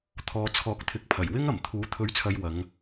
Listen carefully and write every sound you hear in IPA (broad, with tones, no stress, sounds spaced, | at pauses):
t̪ʰ ɔː˨ t͡sʰ ɔː˨˥ k̚ t̪ʰ ɪ˨˥ k̚ pʰ ɐ˨˩ j w ɪ˥ ŋ ɐ˨˩ m t̪ʰ uː˨˥ t̪ʰ ɵ˨˥ ɥ t͡sʰ ɐ˨ j w ɐ˨˧ ŋ